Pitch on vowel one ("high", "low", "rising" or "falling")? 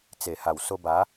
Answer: low